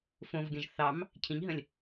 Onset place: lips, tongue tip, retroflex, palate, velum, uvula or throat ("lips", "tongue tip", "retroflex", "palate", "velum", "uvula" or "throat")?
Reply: lips